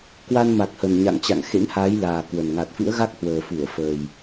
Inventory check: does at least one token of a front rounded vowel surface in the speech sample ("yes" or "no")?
no